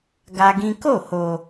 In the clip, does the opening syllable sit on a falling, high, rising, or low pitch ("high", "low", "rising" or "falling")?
high